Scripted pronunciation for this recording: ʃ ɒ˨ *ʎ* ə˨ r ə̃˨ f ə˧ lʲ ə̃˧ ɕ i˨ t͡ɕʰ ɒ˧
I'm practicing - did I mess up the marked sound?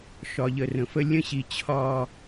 no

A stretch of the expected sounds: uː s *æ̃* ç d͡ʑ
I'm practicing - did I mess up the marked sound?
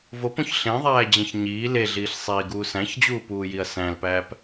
no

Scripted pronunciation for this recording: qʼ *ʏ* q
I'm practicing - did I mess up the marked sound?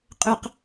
no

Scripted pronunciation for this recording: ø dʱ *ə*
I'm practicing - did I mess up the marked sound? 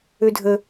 no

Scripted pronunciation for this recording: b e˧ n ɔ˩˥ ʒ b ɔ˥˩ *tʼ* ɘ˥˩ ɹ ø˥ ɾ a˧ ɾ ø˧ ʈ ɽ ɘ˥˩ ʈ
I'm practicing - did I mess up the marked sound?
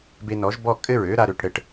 yes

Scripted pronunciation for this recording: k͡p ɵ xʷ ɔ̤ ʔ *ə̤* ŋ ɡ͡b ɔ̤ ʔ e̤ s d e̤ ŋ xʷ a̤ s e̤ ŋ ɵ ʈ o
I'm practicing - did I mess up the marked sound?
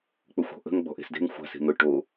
no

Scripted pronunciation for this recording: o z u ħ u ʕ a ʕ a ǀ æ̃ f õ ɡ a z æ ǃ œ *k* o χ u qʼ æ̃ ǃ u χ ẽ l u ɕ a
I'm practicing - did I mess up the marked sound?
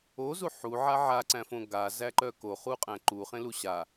no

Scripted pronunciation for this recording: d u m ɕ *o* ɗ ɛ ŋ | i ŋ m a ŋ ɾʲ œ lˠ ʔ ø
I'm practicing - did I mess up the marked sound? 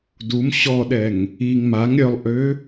yes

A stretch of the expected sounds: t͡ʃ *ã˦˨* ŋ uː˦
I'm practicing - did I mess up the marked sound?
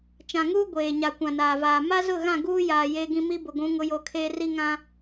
yes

